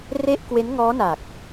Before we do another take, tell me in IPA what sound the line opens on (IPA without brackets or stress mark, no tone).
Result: r